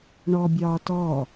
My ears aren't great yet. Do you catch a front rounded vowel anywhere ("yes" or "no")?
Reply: no